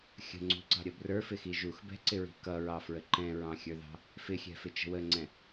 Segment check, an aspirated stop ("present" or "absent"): absent